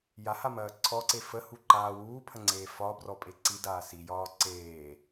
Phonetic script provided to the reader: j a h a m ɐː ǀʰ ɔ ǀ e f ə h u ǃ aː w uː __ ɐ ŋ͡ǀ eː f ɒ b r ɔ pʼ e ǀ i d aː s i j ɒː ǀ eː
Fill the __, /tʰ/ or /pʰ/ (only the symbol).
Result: pʰ